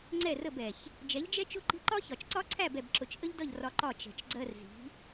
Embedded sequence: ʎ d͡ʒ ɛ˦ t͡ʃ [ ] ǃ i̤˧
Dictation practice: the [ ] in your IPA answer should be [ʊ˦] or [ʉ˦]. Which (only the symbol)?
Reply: ʊ˦